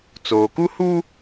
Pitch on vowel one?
low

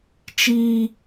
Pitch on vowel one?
high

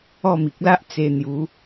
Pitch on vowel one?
falling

